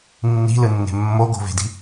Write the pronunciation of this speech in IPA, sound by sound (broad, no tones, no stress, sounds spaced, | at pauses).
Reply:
nː i̤ l ɯ nː e̤ mː o ɡ o̤ v e̤ d i̤